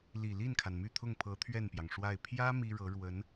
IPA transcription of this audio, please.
li˨˩li˥˩nkʰa˩n my˥˧t̪ʰʊ˥˩ŋpʰɤ˧˥ t̪ʰɥɛ˥˩npjɑ˩ŋʂwa˥˩ɪ̯ pʰjä˥ mi˥ɻɤ˧˥ ɻwə˧˥n

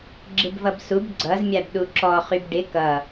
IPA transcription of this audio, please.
ɡ͡ǁɪbvʌbsub ɡ͡ǀʌz mʲabɗuǁɔ χybɖɪ kʌ

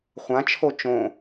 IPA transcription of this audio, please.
χʷãt͡ʃʰo t͡ʃõ

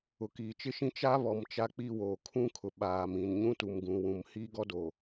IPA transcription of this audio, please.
ʊ˨kiː˨t͡ʃɪ˦ʃĩ˦ t͡ʃa˦βɔ˨m t͡ʃa˦k͡pi˦ woː˨ kʰũ˦kʰʊ˨ ɓaː˨mĩ˨n ɲũ˦tu˨mɡũ˨wũ˨m hiː˦ɡɔ˦do˨

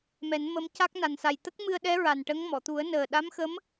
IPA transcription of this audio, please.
mɛ˨˩˦nmə˧˥mca˦˥k̚ na˨˩nsa˨˩jt̪ə˦˥k̚ mɨ˧ə̯ɗɛ˧˥ ɹa˨˩nʈə˧˥ŋ mɔ˨˩˨t̪u˨˩˦ə̯nəː˨˩ ɗa˧˥mxə˧˥m

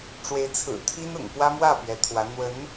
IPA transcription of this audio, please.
ʈ͡ʂwe˧˥ɪ̯t͡sʰɹ̩˨˩t̪ʰi˥nʊ̰˨˩ŋ pwä˥mwä˥˩ pɥɛ˧˥t̪ʰwä˧˥ n̪wə˧˥n

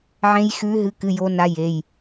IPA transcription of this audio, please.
ʕẽ˦˥jxʉ˦˥ ɦɨ˦˥ kɨ˧˥˧jo˦˥na˦˥ je˧˥˧j

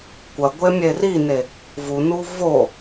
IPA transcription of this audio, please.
kʷɐɡʷe mʲerine | vunu vo

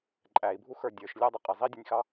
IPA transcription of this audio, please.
ǃʼæi̯ bʱuxə˞dʲə˞ʃ lʲɑdˤɪqʼɪ zˤidʲʌnʲxɑ

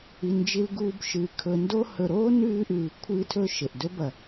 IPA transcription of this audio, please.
i˩nd͡ʒi˨lɡuː˨bʃɨː˩ kʰɵ˨ndo˦ hɵ˨ɾoː˥ nʉː˦ ʔʉː˨kʷʰɨː˦tʰɵ˥ ʃe˩ʔdɵ˥bɐ˨

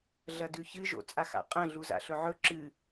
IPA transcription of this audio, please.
ɮɐdʉçɨʒo̰ t͡sʼaxa̰qʼɐ̃ ɮuza̰ɬɵʕɵ ǁɨ

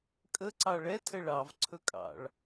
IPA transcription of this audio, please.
kʼə ǀɑɭɛtʰə ɭɑvǀʰɵkʼɑ̰ɭ

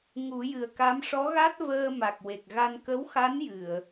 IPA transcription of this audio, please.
ŋu˨˩˦jɨ˨˩ə̯ka˧˥m ʂɔ˧˥ɣa˦˥t̚vəː˧ ma˨˩k̚we˨˩k̚ɣa˧n kə˧˥wxa˧˥n jɨ˨˩˨ə̯

